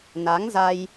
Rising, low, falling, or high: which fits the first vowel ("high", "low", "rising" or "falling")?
rising